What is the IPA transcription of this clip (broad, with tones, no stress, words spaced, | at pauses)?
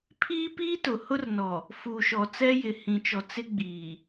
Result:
pʰiː˦piː˦tʊ˨ hʊ˦rnɔ˨ | fu˨ʃɔ˨ t͡sɛ˦jɪ˨ hĩ˨t͡ʃɔ˨ t͡sɪ˦ɡ͡biː˨